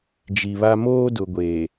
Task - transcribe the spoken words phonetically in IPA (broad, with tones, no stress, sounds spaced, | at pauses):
d͡ʒ i˨ β a˦ m oː˦ d ʊ˨ ɡʷ eː˨